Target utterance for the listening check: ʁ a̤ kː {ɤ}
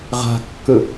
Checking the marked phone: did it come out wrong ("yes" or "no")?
yes